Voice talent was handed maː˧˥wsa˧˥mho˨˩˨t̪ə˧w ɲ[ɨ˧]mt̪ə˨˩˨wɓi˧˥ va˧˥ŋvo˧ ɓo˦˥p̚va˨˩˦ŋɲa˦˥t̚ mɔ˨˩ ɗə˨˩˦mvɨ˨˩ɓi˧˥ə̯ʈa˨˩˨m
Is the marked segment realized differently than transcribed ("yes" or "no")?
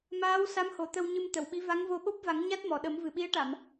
no